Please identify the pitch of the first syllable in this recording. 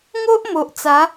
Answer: high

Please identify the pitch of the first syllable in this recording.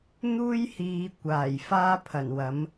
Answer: high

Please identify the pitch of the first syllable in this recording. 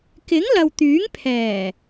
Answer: rising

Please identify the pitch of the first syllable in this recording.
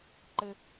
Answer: high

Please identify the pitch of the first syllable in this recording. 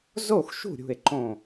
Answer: falling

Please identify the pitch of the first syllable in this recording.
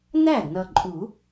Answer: falling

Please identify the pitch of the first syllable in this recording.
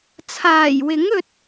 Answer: low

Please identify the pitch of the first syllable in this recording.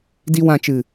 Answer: low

